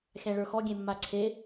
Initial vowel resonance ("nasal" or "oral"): nasal